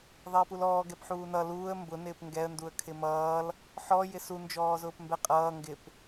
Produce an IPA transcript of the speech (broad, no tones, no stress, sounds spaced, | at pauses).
ðˤ ɪː p u l ɔː ɡ ɛ p ħ uː n ʌ l uː ə̯ m b ʊ n ɪː p ŋ ɡ ɛ ə̯ n d u ə̯ kʰ ɪ m ʌː l | ħ ɔ j ɪ s u n d͡ʒ ɔː z ʊː p m b ɛ qʼ ʌː ŋ ɡ ɪ p